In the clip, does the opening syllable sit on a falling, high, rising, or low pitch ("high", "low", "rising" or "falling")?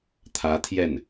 rising